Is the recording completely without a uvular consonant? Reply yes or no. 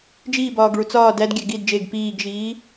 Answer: yes